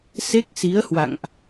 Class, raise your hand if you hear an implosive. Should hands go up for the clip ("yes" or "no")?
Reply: no